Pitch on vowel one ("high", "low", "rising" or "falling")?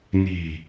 low